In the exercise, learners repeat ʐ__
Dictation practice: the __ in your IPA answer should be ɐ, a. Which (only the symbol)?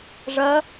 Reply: ɐ